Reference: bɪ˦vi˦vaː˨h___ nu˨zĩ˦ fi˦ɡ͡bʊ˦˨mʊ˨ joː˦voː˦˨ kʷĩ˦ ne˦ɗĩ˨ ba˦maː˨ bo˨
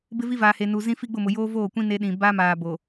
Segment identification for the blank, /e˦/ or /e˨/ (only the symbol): e˨